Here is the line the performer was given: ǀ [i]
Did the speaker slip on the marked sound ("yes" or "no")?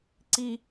no